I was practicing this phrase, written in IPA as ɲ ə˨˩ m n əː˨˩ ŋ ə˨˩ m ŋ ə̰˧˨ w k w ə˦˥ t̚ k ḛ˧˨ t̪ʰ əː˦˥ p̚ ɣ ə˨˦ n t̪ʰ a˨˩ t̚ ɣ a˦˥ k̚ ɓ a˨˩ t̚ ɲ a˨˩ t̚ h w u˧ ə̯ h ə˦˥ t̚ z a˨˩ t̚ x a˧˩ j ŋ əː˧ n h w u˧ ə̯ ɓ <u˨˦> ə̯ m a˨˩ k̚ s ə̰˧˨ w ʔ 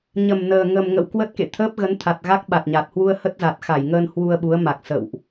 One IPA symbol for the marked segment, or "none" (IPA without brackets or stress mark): u˨˦